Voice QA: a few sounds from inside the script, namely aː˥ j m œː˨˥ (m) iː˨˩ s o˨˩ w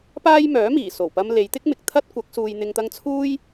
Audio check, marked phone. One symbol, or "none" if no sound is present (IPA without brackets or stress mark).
m